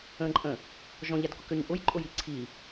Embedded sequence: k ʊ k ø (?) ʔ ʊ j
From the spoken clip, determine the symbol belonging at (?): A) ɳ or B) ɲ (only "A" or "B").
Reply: B